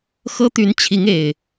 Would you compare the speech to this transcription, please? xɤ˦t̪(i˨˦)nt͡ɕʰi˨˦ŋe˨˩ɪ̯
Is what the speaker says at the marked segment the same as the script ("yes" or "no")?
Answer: no